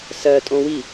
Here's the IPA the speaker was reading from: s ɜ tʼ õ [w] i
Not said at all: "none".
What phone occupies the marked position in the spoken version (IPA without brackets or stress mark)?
w